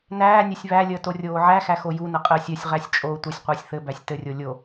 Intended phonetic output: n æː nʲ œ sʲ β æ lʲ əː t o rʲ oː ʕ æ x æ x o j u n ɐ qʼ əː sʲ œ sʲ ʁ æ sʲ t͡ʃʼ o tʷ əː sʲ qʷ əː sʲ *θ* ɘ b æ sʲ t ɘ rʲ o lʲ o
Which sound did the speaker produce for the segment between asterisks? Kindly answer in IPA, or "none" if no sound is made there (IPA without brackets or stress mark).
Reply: θ